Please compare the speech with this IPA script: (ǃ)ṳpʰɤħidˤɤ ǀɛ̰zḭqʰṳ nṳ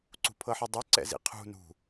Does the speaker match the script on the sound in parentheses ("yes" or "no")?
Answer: no